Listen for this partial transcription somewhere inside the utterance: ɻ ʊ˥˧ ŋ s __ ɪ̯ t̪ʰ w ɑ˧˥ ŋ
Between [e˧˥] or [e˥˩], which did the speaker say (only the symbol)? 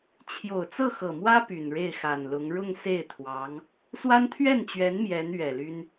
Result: e˥˩